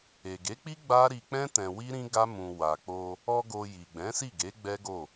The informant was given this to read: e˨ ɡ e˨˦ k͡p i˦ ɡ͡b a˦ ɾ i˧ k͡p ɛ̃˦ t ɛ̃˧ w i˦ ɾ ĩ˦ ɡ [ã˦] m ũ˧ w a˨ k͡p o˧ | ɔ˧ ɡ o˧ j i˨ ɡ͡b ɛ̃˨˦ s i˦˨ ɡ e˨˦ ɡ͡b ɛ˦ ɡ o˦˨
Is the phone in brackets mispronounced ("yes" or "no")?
yes